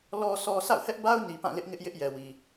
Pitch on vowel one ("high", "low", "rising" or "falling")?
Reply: low